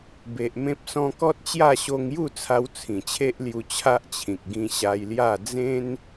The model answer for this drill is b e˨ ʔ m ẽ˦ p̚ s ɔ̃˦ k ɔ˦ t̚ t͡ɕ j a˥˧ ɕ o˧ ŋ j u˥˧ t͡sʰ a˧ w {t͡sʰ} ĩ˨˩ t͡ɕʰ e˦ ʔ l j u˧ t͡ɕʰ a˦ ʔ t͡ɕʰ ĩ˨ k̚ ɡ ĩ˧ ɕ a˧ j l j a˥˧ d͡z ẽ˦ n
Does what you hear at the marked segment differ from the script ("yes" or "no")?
no